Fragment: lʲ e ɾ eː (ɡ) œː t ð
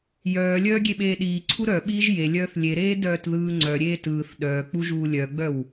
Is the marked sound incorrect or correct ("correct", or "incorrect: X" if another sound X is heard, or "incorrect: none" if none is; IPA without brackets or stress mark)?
incorrect: d